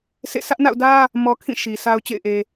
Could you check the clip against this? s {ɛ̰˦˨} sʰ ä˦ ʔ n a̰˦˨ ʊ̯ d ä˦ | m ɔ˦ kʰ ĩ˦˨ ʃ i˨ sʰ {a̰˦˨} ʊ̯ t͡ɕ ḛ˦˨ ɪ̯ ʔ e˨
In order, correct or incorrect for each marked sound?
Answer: incorrect: ḛ˦˨, incorrect: a˦

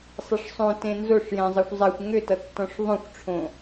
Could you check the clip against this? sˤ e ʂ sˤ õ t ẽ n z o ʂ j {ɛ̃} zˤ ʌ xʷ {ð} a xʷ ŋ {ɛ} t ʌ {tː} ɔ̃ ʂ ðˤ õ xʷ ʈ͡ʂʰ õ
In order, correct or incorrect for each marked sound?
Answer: correct, incorrect: zˤ, incorrect: ʏ, correct

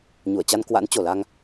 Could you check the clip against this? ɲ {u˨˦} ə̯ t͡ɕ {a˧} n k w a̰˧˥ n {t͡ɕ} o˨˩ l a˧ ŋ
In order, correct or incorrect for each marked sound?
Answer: incorrect: u˧˩, correct, correct

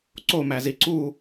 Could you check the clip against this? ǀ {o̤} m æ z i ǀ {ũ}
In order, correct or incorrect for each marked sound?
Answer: incorrect: o, incorrect: u

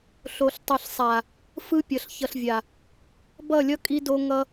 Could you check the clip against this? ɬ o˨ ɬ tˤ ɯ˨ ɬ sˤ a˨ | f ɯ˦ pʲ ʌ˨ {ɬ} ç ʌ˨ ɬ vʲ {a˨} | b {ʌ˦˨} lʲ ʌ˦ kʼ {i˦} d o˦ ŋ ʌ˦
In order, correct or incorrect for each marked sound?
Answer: correct, correct, correct, correct

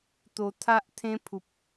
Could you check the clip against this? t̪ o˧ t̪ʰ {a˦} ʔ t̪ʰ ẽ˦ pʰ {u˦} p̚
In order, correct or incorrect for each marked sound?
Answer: correct, incorrect: u˨

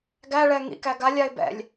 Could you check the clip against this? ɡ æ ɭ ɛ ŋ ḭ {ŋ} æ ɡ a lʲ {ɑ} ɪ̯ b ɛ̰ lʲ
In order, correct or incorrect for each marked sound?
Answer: incorrect: k, incorrect: a

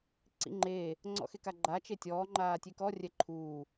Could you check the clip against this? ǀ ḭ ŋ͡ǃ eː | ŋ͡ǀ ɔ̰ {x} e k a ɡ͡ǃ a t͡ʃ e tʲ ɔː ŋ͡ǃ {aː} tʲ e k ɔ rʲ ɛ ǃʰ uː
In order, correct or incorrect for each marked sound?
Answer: correct, correct

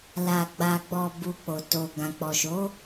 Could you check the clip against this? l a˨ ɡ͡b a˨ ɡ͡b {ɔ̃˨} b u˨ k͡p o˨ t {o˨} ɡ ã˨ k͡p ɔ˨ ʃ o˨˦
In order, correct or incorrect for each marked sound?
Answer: incorrect: ɔ˨, correct

